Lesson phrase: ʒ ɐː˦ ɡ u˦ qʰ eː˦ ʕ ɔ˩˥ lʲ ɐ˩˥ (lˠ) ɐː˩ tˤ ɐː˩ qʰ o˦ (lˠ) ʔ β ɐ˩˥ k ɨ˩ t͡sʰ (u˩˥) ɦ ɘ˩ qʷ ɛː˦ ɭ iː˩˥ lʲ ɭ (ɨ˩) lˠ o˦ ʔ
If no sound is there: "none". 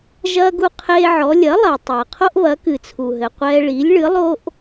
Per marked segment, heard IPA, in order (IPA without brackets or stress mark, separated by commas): lˠ, none, u˩, ɨ˩˥